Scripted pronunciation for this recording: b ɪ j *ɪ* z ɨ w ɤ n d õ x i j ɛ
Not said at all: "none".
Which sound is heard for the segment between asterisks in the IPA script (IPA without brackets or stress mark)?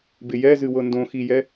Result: ɛ